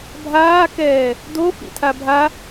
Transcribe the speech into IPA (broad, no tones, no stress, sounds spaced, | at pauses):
bʱ aː k ɛː | d o f ḭ tʰ a bʱ a